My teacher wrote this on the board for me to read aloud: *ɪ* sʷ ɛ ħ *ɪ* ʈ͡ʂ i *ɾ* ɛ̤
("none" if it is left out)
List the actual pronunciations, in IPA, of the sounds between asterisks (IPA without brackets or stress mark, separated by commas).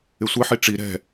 ɪ, i, ɾ